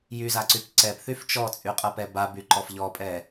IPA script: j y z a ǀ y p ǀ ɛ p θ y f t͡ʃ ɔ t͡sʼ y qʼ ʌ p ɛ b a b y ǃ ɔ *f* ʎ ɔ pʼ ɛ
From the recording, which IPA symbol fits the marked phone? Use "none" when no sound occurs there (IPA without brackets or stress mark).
f